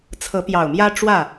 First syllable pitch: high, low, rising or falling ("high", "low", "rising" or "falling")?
rising